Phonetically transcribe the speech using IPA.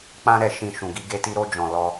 k͡p ã˧ ɾ ɛ˨ ʃ ĩ˨ ʃ ũ˨ ɡ i˧ ɡ e˧ t i˧ ɾ o˧ d͡ʒ ɔ̃˨ l ɔ˧

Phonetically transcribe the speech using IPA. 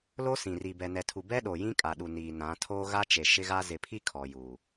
l o˦ s ĩ˨ r i˨ b ɛ˨ n ɛ˨ tʰ u˨ b ɛ˦ ɗ o˨ j ĩ˦ kʼ a˨ ɗ u˨ n iː˨ n ã˨˦ tʰ oː˦ ɣ a˦ t͡ʃ e˨ ʃ ɪ˦ ɣ a˦ z ɪ˨ pʰ i˦ kʰ ɔ˨ j uː˨

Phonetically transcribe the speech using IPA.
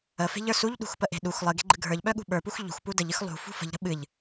ə f e̤ ʎ ə˞ s u ʎ ɗ ṳ x p ə ʔ e̤ ɗ u x lˠ ɨ ɡ e̤ ɡ͡ǃ ɨ ɡʱ ə˞ ʎ ɓ œ ɠ ṳ ɓ ə˞ p u x ʎ ṳ x p u d ə ʎ ɨ x lˠ ṳ f ṳ f ə̤ ʎ ɾ ə̤ ɓ ɨ ʎ

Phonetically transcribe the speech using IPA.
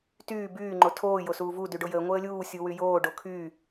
t yː b yː ŋ͡ǃ o tʰ oː j o s uː v u d y ɖ o j əː ŋʷ əː lʲ uː sʲ u w y j oː ɖ o kʰ yː

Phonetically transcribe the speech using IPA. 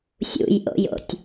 sʲ ṵ j ʔ o̰ j o̰ tʲ

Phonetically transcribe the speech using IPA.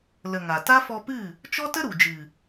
l ə˨ ŋ a˨ t a˦ f ɔ˧ p ɨ˦˨ | t͡ʃ ɔ˦ t ə˦ ɾ u˨ d͡ʒ ɨ˨

